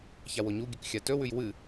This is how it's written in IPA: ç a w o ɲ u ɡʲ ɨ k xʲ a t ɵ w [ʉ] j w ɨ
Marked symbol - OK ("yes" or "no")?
yes